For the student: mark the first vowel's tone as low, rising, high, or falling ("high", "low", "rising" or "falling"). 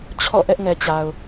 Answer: falling